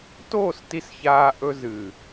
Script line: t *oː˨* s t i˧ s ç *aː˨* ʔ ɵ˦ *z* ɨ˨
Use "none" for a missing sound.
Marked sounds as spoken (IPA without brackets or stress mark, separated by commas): oː˦˨, aː˦, z